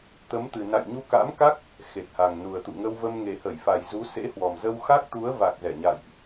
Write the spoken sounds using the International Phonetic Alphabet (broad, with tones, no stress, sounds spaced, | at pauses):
t̪ ə˨˦ m t̪ ɨ˨˩ n a̰˧˨ j ɲ u˧ k a̰˧˥ m k a˦˥ k̚ | x e˨˩ t̚ h a˨˩ ŋ n u˨˩ ə̯ t̪ ṵ˧˨ ŋ ə˧ w v ə˧ m ŋ e˨˩ h ə˧˩ j f a˨˩ j z u˨˦ s ḛ˧˥ h w ɔ˨˩ m z ə˧ w x a˦˥ k̚ t̪ u˨˦ ə̯ v a˨˩ k̚ z ɛ˧˩ ɲ a̰˧˨ j ʔ